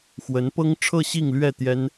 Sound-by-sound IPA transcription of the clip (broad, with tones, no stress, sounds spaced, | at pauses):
x w ə˧˥ n p ɤ˥ ŋ ʈ͡ʂʰ ɤ˥˧ ɕ i˥˧ ŋ l ɥ ɛ˥˩ t̪ j ɛ˥ n